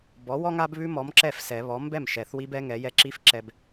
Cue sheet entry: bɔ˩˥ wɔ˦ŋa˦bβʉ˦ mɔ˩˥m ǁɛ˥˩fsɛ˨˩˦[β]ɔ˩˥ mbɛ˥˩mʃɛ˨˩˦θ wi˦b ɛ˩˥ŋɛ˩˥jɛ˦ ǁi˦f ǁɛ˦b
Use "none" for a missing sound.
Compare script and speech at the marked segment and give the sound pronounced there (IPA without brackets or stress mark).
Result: β